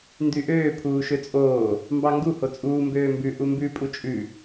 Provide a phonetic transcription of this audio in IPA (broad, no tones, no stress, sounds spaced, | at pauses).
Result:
n d y ʔ øː pʰ uː ʃ ø t͡sʼ oː | m b ɑ ŋ ɡ u h o t͡sʼ uː m b øː m b ʉ ʔ u m b ʉ pʼ u t͡ʃʼ ʉ